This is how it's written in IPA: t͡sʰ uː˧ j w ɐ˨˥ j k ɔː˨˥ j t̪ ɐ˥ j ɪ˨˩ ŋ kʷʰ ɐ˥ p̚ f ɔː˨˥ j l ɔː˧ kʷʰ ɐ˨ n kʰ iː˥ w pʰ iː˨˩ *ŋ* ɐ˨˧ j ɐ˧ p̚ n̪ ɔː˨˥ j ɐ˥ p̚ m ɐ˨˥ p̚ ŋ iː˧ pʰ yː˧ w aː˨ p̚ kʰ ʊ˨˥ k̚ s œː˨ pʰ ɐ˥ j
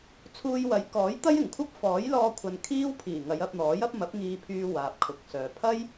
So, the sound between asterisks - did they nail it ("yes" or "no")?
yes